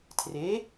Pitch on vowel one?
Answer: rising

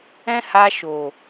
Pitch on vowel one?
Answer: high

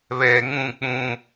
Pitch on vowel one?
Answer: low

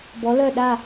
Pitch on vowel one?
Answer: rising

